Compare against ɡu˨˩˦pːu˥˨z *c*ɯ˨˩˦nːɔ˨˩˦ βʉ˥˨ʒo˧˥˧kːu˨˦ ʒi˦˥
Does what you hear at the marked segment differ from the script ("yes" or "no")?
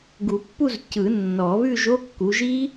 no